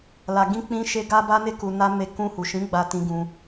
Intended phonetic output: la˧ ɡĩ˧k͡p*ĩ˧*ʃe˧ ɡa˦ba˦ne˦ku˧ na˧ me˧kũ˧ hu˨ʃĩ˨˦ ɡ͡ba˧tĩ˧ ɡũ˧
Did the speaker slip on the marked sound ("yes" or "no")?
no